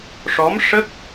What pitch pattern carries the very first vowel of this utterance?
rising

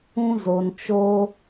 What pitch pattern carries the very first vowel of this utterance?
high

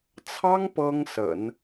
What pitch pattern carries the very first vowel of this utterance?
high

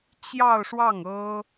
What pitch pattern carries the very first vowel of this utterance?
falling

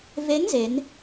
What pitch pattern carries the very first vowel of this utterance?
rising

